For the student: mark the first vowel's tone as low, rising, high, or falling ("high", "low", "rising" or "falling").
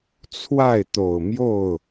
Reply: falling